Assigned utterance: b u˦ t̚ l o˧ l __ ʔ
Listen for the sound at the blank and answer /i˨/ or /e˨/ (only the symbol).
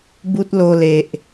e˨